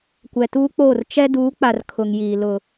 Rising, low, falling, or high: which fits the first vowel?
low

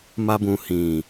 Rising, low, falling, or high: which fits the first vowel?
high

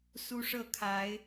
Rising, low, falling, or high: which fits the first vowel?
high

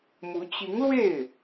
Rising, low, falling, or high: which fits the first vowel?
rising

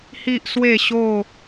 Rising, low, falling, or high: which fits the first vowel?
high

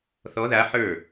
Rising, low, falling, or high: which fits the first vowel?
rising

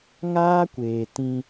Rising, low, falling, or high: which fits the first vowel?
high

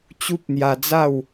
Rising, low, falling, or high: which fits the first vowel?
high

